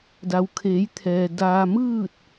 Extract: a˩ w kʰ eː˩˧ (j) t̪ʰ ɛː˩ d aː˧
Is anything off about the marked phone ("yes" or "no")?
no